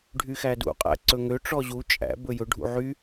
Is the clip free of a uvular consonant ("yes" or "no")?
no